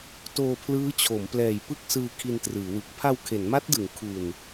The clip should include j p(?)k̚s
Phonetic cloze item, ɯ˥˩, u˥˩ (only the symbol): ɯ˥˩